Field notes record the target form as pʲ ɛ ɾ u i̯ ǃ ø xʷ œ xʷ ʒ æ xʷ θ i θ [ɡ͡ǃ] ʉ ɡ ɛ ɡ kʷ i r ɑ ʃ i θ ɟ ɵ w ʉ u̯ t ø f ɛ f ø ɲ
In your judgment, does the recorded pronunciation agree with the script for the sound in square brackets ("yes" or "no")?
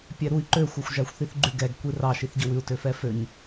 yes